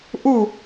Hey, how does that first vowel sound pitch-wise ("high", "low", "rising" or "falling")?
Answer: falling